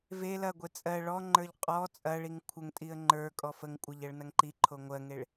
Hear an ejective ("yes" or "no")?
yes